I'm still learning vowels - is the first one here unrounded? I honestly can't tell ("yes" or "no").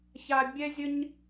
yes